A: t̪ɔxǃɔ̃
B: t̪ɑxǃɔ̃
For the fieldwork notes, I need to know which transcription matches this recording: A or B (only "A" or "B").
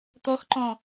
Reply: A